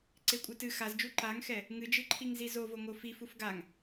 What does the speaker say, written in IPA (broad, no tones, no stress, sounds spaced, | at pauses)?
ǀ e kʷʼ ɨ t ɨ x a z d͡ʒ u ǃ a ŋ x ɛ | ŋ ɨ d͡ʒ ɨ ǃʰ i ŋ z i z o v o ŋ o f i f u f ɡ a ŋ